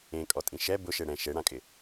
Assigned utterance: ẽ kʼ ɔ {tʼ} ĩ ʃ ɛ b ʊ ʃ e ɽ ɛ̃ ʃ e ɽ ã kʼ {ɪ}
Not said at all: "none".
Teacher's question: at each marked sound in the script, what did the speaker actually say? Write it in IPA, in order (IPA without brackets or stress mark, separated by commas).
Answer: tʼ, ɪ